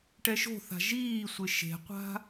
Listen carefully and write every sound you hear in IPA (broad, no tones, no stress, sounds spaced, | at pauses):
ʈ ɛ ʃ o̤ θ a̤ ʒ iː sʷ ɪ ʃ e̤ qʷ a̤